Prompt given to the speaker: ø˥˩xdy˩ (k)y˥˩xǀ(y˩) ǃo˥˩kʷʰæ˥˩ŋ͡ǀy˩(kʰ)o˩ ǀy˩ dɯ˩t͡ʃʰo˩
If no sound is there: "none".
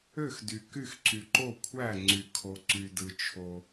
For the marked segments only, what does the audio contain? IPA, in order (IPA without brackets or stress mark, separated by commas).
k, y˩, kʰ